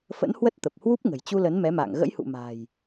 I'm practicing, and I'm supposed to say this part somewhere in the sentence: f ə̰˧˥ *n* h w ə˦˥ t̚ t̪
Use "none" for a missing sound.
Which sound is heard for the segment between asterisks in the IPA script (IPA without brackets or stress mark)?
n